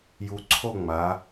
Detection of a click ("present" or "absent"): present